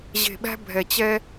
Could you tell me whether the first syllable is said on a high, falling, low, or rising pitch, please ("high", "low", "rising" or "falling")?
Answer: low